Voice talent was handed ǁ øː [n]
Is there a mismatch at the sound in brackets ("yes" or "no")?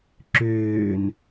no